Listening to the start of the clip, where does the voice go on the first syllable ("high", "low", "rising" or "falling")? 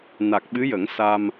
low